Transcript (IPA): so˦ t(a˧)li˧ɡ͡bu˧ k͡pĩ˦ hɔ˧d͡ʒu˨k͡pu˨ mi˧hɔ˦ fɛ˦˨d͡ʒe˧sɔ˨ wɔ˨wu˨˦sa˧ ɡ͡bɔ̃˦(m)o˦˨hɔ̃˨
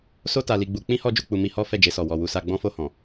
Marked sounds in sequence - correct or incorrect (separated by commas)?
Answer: correct, incorrect